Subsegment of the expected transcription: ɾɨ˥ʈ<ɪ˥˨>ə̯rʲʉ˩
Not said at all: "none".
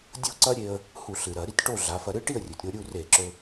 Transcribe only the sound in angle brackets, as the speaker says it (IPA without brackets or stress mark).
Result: i˥˨